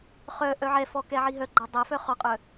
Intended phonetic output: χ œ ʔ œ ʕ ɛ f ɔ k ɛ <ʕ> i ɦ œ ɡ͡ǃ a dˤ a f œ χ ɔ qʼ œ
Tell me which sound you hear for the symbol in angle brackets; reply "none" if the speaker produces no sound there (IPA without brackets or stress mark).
ʕ